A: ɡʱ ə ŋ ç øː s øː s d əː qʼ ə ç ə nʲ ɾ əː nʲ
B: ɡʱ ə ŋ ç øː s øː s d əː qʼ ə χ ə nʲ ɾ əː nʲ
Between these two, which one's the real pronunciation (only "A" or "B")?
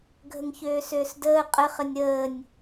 B